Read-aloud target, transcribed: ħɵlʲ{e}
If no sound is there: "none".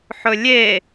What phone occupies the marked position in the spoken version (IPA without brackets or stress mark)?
e